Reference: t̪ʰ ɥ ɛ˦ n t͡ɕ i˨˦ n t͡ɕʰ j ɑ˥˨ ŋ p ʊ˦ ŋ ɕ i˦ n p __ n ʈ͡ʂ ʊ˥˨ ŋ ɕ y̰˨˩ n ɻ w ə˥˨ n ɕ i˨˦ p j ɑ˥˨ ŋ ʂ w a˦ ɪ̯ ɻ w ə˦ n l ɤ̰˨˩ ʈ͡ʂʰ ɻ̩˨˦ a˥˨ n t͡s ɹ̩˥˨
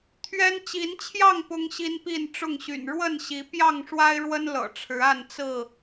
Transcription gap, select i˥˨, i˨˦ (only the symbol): i˥˨